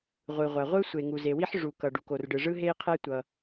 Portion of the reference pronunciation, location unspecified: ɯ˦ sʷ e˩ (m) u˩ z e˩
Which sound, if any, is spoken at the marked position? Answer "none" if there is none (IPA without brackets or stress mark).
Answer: ŋ